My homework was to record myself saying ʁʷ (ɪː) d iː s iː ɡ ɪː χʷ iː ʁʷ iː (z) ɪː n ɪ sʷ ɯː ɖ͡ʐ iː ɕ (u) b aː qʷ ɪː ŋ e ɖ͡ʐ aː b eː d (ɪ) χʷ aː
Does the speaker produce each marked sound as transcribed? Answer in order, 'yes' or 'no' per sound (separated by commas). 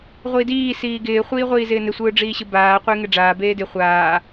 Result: no, yes, no, yes